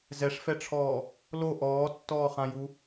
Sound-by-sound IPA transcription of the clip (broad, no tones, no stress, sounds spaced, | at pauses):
z ɛ ʂ f ɛ ʈ͡ʂʰ ɔː | l o ʔ ɔː tː ɔː χ ã j u